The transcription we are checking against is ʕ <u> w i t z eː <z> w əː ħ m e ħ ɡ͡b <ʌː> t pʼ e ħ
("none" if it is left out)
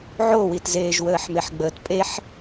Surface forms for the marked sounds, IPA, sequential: o, ʒ, əː

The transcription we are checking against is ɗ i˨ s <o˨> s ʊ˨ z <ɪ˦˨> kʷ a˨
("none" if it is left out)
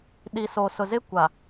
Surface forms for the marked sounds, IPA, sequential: o˨, ɪ˦˨

